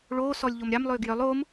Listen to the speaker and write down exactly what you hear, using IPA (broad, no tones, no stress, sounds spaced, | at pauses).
ɭ oː s ɔ lʲ ʎ o m ɾʲ ɑ m lˠ ʏː ɡ j œ lˠ oː m